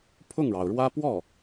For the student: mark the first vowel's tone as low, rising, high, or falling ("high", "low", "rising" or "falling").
falling